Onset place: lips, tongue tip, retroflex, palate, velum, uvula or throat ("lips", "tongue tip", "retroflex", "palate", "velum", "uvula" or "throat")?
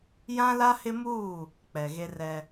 palate